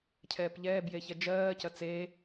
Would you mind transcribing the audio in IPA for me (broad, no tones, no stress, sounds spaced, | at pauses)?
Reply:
cʰ ɛː p ʎ ɛː b j e ç ɛ d͡ʒ ɜː c ɐ t͡s eː